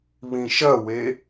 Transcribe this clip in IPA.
β ĩ ʃ ɐ w e

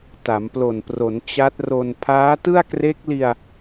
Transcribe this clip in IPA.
t a˩˦ m p l o˨˩ n p r o˩˦ n t͡ɕ a˦˥ t̚ r o˧ n pʰ aː˦˥ t ɯ˥˩ a̯ k r e˦˥ k̚ l i˧ a̯

